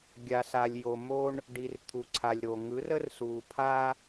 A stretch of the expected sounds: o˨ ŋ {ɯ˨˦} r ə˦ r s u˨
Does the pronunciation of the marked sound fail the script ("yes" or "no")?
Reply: no